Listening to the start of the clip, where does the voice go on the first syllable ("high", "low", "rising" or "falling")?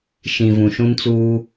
low